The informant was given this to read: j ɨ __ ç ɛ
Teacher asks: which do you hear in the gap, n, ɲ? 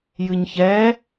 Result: ɲ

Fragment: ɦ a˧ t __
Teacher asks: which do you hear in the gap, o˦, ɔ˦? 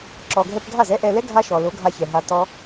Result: ɔ˦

